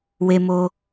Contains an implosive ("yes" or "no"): no